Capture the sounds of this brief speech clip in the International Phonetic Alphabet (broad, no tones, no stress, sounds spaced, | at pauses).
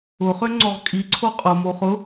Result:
ʊ χ ø ŋ͡ǀ ɔ ʁ kʼ i ǀʰ o qʼ ʊ m o χ ʊ